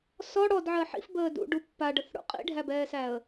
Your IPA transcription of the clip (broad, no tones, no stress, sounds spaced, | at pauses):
s ɔ ɽ ɔ d ʕ ɜ ħ ḭ f b əː d ṵ ɖ u pː a ɖ ə θ ɽ ṵ qʼ ḭ ɖʱ æ b ɛː s æ ə̯